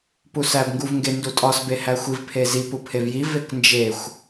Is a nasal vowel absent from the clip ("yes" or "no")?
yes